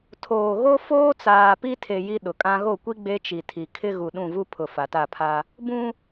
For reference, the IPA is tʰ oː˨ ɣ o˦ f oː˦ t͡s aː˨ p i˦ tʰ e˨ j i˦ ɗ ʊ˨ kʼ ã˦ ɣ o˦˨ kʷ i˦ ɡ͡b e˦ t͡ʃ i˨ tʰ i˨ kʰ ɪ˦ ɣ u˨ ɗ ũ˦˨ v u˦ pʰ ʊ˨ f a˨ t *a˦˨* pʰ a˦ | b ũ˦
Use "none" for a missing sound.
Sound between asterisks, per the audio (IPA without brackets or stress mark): a˦˨